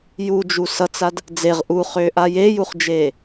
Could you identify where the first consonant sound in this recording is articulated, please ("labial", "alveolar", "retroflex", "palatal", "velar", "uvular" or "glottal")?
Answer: palatal